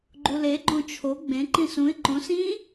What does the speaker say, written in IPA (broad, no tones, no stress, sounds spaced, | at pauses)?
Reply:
ɡ͡ǃ u l e ɡ͡ǃ õ t͡ʃʰ o ɡ͡b ẽ ǃ ĩ s ũ ɪ̯ ǃ õ s ĩ